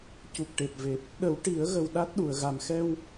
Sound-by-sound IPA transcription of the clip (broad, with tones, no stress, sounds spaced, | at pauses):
c u˨˩ k̚ ʈ e˨˩ p̚ v e˨˩ p̚ | ɗ ə˨˩˦ w ʈ i˨˩˦ ə̯ ɣ ə˨˩ w ɗ a˦˥ t̚ ɗ u˨˩ ə̯ ɣ a˨˩ m x ɛ˧ w